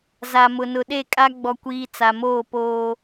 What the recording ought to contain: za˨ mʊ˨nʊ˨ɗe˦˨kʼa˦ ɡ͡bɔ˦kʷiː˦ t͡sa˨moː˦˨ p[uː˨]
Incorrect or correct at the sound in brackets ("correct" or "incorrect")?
incorrect